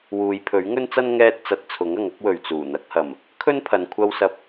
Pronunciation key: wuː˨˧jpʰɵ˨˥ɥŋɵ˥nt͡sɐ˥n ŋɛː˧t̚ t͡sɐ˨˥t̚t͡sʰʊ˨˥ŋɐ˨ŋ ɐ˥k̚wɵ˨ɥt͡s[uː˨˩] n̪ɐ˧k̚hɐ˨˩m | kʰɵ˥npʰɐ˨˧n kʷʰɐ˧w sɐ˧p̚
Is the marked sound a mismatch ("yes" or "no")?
no